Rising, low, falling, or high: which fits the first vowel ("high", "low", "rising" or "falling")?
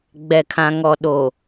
low